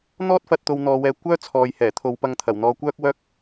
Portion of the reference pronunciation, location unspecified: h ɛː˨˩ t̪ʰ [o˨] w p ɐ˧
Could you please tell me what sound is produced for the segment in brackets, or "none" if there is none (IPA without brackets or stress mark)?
o˨˧